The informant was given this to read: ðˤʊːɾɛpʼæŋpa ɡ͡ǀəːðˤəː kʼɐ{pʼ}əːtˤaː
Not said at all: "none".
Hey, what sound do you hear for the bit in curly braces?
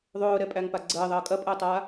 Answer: pʼ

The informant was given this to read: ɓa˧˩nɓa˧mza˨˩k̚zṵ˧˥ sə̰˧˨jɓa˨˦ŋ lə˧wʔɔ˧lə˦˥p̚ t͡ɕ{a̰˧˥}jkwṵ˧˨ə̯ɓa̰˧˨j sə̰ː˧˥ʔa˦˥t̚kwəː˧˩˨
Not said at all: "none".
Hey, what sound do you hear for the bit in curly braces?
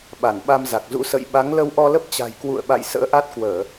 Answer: a̤˨˩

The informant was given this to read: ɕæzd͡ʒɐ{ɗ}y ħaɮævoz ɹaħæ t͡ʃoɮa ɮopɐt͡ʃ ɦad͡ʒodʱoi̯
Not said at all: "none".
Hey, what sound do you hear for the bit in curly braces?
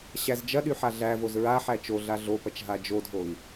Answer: ɗ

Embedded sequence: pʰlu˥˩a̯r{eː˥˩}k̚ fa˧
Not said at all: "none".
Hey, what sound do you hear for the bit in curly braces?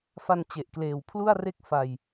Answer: e˥˩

